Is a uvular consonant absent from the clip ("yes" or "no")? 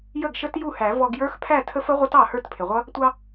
no